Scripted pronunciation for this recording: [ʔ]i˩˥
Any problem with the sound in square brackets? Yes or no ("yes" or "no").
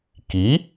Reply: yes